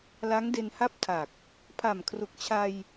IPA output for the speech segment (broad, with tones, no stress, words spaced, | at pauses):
la˦˥ŋde˧nha˥˩p̚tʰa˨˩k̚ | pʰa˨˩mkʰru˨˩k̚t͡ɕʰa˧j